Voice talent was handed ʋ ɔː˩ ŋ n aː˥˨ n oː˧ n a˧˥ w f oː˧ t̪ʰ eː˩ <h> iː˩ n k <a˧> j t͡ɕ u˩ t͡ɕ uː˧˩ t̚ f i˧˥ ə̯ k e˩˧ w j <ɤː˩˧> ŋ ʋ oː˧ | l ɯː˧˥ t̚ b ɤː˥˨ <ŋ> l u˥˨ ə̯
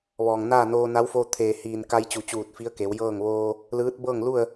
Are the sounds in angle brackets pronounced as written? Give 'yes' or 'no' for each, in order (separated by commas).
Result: yes, yes, no, yes